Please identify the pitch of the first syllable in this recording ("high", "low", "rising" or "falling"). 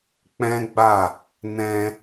high